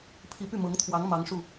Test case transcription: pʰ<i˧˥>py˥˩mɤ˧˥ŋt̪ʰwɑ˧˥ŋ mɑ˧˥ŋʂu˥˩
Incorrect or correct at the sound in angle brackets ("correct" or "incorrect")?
correct